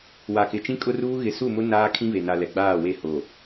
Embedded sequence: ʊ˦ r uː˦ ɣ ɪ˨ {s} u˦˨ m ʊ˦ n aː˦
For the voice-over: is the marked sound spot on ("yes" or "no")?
yes